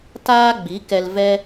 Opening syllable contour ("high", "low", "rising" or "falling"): high